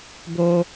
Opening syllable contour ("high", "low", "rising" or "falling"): high